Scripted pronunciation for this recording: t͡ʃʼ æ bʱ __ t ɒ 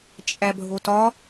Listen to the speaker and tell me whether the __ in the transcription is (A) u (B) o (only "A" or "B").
B